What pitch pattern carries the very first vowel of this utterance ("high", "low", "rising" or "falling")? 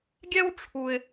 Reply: high